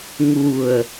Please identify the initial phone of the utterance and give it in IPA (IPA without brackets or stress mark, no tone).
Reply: ŋ